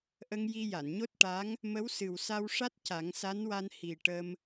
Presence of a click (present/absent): absent